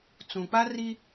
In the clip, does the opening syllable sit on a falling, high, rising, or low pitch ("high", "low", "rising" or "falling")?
low